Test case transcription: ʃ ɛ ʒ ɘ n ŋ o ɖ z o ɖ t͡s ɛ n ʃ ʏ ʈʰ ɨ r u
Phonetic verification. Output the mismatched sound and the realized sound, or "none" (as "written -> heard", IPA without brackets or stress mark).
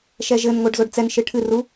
ʏ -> ɨ